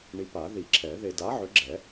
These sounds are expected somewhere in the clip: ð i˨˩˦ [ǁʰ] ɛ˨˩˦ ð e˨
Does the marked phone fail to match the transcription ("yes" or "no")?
no